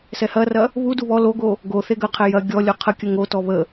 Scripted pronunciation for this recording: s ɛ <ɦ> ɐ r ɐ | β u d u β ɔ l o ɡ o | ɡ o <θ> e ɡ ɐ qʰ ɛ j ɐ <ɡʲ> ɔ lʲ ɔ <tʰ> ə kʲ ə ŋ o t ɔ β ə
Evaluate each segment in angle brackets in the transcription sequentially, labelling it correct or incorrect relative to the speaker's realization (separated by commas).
incorrect, correct, correct, incorrect